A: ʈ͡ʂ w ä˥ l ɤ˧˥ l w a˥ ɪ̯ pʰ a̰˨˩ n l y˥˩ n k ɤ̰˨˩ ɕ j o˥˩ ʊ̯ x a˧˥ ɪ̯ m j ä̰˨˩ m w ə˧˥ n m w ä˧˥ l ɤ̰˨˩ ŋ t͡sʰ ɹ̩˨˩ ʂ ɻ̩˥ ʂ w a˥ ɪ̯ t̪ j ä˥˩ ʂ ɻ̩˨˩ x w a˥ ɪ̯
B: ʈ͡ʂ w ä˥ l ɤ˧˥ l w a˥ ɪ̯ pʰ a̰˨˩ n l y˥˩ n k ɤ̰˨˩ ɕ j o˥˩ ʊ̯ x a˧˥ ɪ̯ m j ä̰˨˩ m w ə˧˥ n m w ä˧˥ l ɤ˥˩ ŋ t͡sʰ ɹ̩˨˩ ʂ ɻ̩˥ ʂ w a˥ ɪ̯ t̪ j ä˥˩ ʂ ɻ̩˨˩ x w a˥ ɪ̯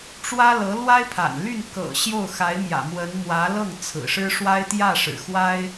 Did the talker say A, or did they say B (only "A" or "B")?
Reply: B